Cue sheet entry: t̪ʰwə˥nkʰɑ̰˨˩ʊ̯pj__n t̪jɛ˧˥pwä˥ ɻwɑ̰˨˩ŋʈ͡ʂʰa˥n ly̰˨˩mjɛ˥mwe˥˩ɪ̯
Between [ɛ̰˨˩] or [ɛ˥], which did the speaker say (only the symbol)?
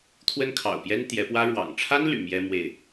ɛ˥